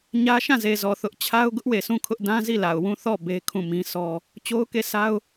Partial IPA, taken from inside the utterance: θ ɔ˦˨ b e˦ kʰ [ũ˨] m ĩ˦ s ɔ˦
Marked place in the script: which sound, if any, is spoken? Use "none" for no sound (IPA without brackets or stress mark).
ũ˦˨